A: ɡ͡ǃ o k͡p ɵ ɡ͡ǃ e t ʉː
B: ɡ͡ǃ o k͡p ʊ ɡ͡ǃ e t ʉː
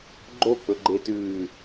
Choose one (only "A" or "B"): A